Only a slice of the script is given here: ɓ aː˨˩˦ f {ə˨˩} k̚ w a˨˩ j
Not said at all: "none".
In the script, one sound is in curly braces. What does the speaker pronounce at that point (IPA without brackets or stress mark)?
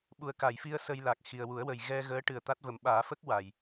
ə˦˥